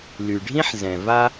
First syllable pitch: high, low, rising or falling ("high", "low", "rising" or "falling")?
low